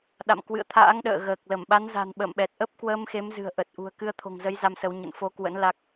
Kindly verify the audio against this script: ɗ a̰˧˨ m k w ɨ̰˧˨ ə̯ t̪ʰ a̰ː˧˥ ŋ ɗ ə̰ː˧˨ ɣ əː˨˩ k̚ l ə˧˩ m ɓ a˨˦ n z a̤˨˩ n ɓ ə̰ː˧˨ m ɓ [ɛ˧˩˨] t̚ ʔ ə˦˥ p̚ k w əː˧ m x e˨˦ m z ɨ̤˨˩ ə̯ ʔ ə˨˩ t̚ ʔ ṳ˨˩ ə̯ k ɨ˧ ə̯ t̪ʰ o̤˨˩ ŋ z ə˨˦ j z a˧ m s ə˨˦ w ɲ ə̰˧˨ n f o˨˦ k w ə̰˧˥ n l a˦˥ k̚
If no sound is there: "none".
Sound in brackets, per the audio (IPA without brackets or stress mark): ɛ˨˩